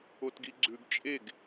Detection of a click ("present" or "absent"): present